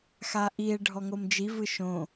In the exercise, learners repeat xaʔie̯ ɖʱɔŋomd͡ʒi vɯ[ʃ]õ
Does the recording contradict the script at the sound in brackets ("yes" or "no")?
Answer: no